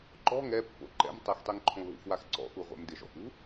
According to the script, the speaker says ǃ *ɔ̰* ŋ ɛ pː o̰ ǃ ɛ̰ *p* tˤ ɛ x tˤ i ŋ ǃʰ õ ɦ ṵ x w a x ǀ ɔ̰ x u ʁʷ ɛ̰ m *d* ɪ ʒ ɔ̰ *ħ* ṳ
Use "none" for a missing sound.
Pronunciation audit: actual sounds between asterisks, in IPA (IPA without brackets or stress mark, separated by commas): ɔ̤, m, d, x